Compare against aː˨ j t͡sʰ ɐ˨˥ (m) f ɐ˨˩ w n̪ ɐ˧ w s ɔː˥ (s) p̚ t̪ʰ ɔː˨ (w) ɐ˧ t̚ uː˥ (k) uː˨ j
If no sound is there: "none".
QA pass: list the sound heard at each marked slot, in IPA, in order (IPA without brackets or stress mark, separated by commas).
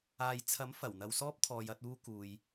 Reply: m, none, j, k